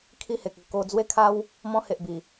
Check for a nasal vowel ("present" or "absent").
present